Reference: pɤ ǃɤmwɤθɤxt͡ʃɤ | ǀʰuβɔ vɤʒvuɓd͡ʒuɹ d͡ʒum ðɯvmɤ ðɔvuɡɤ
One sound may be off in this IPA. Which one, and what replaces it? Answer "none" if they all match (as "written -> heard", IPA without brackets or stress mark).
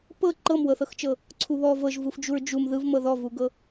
ɓ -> f